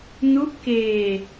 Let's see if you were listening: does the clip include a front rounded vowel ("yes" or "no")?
no